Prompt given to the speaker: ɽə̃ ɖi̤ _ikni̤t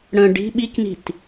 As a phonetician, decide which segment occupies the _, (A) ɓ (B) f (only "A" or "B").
A